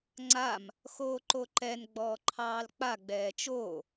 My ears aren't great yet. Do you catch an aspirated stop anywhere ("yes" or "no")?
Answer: yes